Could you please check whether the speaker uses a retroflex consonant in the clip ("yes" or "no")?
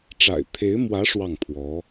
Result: yes